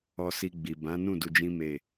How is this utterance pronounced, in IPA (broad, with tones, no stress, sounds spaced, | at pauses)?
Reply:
ɔ˧ s i˧ ɡ͡b i˨ b ã˨˦ n ũ˦˨ d u˧ d͡ʒ ĩ˦ m e˦˨